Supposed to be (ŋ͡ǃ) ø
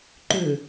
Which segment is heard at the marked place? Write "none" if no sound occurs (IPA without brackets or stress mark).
ǃ